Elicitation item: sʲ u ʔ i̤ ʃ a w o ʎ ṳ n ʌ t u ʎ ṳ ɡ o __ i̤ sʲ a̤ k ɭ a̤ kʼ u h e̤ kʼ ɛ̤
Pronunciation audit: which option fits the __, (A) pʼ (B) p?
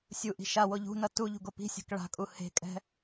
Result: B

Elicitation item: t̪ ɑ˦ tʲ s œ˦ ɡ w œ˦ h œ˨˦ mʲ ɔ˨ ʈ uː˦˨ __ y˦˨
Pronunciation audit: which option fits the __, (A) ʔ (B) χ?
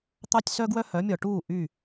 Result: A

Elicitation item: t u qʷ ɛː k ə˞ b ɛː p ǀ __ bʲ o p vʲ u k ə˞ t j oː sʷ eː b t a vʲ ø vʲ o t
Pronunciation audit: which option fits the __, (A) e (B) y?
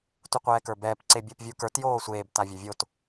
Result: A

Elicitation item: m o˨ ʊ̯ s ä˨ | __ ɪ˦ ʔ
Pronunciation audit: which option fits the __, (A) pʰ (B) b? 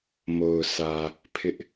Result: A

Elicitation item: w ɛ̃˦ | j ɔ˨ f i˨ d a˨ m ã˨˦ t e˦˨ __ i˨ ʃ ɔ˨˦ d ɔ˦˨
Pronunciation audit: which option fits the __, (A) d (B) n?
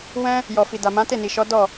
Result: B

